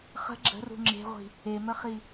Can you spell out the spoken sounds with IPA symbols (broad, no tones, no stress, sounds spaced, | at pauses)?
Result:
χ ə̤ ɡ͡ǁ ə̤ r ṳ ŋ͡ǁ e̤ ʁʷ i̤ | e m ə χ i